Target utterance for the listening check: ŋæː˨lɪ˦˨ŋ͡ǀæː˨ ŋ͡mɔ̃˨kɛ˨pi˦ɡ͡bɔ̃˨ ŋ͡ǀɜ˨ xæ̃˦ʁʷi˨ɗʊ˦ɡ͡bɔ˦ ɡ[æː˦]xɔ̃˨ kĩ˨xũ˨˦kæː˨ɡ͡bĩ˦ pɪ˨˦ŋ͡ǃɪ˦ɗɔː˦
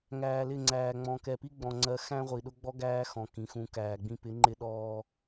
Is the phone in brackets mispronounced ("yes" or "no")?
no